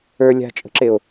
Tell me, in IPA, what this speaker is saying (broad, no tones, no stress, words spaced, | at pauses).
ə˞ lʲa̤t͡ʃʼə̤ǁeo̯